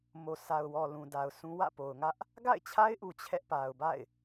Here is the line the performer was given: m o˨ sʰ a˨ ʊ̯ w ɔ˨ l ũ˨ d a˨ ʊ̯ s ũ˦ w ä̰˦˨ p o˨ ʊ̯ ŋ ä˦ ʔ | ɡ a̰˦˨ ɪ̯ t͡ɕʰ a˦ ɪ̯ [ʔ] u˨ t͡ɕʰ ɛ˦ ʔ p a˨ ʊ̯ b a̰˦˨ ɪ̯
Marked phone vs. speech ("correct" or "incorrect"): correct